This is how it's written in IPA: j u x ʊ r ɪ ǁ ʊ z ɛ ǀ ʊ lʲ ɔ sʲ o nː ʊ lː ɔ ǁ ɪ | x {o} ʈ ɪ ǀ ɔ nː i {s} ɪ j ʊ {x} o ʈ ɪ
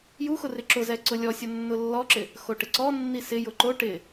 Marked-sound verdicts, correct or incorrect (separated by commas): correct, correct, incorrect